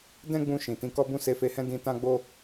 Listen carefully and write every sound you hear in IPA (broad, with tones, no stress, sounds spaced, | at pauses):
d ɛ̃˦ ɡ͡b ũ˧ ʃ ĩ˨ t ĩ˧ k ɔ˦ b ũ˦˨ s e˧ f e˧ h ɛ̃˦ d ĩ˧ t ã˦ ɡ͡b o˦